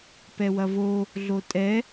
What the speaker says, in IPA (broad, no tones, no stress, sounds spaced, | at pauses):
p ɛ w ɐ v o | ɮ o tʼ ɛ